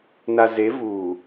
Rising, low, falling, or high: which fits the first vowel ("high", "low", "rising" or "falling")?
low